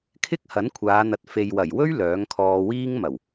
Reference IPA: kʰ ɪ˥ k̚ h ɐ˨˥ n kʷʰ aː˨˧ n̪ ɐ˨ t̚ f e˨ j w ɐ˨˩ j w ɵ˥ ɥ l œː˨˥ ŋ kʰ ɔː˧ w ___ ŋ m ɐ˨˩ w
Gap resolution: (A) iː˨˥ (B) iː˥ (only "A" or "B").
B